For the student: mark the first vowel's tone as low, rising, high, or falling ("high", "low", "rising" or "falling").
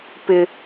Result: high